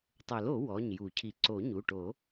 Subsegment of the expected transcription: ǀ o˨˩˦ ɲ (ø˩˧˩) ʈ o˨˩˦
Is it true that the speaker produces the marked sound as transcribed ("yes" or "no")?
no